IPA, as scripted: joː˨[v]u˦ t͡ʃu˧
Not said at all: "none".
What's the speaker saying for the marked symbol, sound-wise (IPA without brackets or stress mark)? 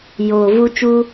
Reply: v